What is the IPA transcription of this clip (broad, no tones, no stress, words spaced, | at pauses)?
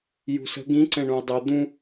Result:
jṳsə̤ ɡĩ ǀɛ̃ɳũi̯dˤɨ d̪ũ